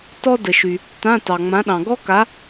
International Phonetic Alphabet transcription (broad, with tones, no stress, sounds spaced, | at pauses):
t ɔ˥ d ə˩ ʃ y˩ | t ã˧˥˧ t ɑ˩ ŋ͡m ã˨˥ ɗ ɑ̃˩ ɡ ɔ˥ k a˨˥